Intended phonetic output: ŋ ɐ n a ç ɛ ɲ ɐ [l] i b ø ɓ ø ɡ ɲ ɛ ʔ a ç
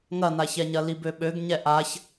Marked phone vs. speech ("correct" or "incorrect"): correct